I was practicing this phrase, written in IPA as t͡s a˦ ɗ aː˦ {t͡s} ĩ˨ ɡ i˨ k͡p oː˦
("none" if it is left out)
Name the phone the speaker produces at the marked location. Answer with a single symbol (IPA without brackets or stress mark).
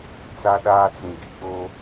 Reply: t͡s